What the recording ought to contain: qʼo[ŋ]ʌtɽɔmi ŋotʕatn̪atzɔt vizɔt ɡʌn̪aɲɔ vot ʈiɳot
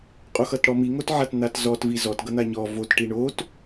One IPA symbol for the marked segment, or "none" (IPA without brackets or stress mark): x